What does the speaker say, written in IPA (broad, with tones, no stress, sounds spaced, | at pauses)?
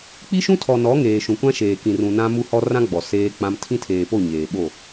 k͡p i˦ ʃ ũ˦ tʰ ɔ˨ n ɔ˨˦ ŋ eː˨ ʃ ũ˨ kʷ ã˦ ʃ eː˨ k ĩ˨ r ũ˨ n ã˦ m u˦ h ɔ˦ r ã˦ ɡ͡b ɔ˨ s eː˦ k͡p ã˦ m tʰ ĩ˦ tʰ eː˨ p o˦˨ ɲ eː˨ ɓ o˦˨